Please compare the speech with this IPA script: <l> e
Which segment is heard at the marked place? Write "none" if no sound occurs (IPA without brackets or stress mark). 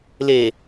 l